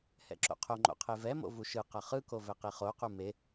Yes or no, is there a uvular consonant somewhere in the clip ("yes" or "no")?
yes